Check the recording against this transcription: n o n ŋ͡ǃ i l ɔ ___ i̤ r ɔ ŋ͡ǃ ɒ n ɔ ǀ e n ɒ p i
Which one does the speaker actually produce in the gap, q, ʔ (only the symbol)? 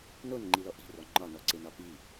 ʔ